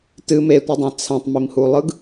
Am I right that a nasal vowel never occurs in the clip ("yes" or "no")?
no